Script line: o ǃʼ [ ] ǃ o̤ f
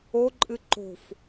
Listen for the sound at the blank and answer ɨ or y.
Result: ɨ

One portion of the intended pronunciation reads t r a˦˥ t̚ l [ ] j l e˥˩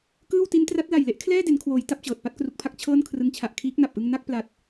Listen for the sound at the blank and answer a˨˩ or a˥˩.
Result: a˨˩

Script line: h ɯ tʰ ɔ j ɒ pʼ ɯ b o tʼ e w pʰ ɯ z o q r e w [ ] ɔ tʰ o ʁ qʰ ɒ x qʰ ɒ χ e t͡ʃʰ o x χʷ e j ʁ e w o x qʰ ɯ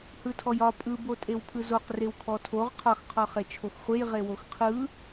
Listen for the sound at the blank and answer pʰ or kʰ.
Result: kʰ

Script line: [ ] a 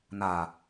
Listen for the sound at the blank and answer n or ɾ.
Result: n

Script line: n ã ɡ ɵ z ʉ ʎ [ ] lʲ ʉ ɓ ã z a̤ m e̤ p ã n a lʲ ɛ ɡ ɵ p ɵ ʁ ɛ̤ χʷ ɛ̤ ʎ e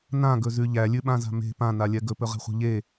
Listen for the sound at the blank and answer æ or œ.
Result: æ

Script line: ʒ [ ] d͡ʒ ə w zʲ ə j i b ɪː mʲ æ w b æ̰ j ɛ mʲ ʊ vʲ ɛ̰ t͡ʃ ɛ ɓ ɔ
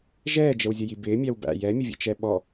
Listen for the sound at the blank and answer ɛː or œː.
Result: ɛː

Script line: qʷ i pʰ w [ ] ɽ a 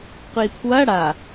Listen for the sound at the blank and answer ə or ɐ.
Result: ɐ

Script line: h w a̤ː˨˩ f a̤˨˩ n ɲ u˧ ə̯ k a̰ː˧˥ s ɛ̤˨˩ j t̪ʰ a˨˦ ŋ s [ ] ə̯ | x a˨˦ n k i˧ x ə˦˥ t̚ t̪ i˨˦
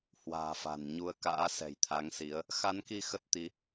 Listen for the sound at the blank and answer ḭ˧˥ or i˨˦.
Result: i˨˦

